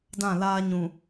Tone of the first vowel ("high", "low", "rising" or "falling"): falling